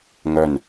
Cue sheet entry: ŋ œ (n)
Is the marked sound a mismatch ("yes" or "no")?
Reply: no